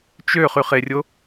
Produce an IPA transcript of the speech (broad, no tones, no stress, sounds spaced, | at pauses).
t͡ʃ ø χ y χ e rʲ o